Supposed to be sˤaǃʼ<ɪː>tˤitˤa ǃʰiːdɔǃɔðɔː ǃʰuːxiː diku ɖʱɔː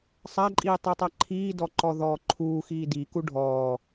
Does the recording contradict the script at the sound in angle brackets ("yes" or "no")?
yes